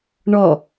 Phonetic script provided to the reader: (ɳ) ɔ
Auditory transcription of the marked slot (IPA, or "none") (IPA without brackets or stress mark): ɳ